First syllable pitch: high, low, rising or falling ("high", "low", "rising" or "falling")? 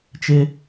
high